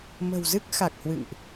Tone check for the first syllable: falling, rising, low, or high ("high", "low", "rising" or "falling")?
low